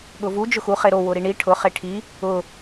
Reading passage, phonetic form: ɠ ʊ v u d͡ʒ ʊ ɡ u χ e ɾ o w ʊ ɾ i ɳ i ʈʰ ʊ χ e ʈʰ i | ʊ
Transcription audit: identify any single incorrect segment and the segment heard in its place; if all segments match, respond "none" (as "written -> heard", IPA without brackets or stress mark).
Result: ɡ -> x